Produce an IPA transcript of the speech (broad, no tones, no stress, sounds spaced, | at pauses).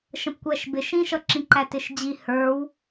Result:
ʃ ə̃ p kʷ æ ʃ b ɪ ʃ ĩ ʃ ʌ ǁ ĩ ǃ æ t ɪ ʃ d͡ʑ i h ə˞ w